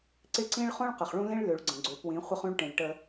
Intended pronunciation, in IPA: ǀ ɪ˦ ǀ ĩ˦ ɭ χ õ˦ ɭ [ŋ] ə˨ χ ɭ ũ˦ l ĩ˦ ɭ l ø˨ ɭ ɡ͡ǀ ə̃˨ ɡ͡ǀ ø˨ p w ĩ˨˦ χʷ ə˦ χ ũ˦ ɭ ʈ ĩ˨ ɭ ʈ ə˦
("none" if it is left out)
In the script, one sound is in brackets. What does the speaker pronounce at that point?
q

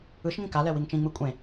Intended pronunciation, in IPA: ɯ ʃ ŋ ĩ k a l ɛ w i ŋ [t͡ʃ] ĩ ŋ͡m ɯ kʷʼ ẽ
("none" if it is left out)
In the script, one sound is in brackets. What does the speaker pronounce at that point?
t͡ʃ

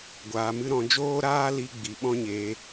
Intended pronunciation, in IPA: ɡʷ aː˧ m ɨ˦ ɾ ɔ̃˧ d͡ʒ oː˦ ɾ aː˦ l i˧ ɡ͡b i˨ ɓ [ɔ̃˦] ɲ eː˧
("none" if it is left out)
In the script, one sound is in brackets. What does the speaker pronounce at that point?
ɔ̃˦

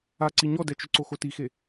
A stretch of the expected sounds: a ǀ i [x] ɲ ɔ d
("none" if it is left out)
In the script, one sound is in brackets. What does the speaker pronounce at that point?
none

